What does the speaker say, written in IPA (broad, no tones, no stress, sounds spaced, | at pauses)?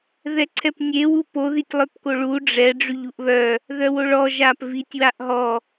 ð ɛ ǀʰ ɛ p nʲ e w u p o ð i tʲ lˠ œ p k o ɭ u ɖ͡ʐ ɛ ɖ͡ʐ y ʎ u ʔ β œ | ð œ w o ɭ ɔ ʒ a p v i tʲ w a ʔ ɦ ɔ